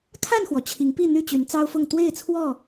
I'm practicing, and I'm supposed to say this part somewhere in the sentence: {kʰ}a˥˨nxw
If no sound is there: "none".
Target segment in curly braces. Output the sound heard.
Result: kʰ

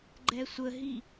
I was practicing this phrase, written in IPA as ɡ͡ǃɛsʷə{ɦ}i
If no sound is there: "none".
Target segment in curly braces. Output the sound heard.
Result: ɦ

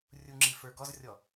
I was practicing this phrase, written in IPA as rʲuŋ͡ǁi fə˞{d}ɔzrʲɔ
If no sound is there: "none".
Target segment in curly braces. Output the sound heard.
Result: ɡ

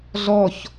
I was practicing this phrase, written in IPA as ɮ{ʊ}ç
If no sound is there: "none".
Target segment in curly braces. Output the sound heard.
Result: ɔ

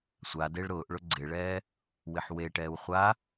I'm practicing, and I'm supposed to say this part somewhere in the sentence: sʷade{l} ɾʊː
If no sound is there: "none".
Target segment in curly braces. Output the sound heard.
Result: ɭ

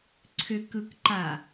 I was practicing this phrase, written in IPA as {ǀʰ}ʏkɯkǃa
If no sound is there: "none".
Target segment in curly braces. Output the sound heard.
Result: ǀʰ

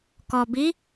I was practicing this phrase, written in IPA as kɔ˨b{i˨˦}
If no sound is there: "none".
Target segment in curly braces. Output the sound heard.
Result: i˨˦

